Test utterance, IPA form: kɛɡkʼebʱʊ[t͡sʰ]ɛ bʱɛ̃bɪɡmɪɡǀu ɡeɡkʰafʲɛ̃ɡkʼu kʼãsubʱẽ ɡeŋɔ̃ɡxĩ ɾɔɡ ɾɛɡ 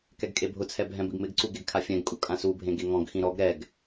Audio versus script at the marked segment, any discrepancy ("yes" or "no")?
no